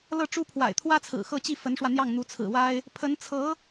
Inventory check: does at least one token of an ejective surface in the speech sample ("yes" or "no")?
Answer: no